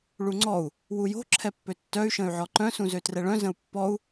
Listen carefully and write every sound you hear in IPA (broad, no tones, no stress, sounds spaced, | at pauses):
ɭ u ŋ͡ǀ ɔ u̯ | w u j o̤ ǁʰ ɛ pː ø tː œ y̯ ʃ ə̃ y̯ ʕ ɔ ǃ œ̃ s ũ z ø t r ɛ ɭ œ̃ z ə̃ u̯ pː ɔ u̯